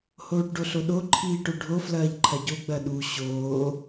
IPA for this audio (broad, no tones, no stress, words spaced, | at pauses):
hoːʈɖoɬoɗo ǃʰiːʈoɖʱo flɐːʎǃʰɐɟo ɡ͡bɐɗu ɕoː